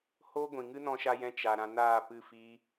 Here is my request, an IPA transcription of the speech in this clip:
h oː˦ ɡʷ ĩ˨ ŋ ɨ˦ n ɔ̃˧ ʃ a˧ j ɛ̃˧ t͡ʃ a˧ ɾ ã˦ n aː˦˨ p ɨ˦˨ f iː˦

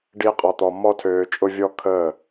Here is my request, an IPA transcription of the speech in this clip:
ɖ iː˦ qʼ ɔ˧ t̪ ɔ˧ m ɔ˦ tʰ øː˧ t͡ʃʼ ʊ˦ vʲ ɔ˦ kʰ əː˦˨

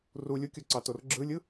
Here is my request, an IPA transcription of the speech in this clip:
r u lʲ u kʲ o ǀ ɑ t o r ɡ͡ǁ ɯ lʲ ɯ

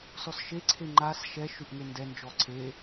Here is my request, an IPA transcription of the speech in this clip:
s ɔ s ʃ e ǀʰ e ŋ͡ǃ a s ʃ ɛ ʃ ʉ ʔ ŋ e n d ɛ n d͡ʒ ɔ ǀʰ e

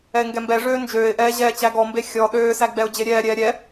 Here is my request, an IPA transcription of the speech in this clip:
ɛ ɪ̯ ŋ ɡ ɛ m b ɛ ʐ øː n d͡ʒ øː ɪ̯ ʔ ɛː ʑ ɛː t͡ɕ æ ɡ ɔ m b e xʲ ɔ ɗ øː s æ ɡ͡b ɛ ʊ̯ d͡ʑ e ɾʲ ɛː ɾʲ ɛː ɾʲ ɛ

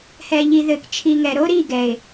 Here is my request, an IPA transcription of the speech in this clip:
h ɛ˨ ʎ i˨ ð ɘ˨ k t͡ʃʰ i˨ ŋ ɛ˨ ɾ o˦ ɾ i˦˨ ɡ ɛ˨ ɪ̯

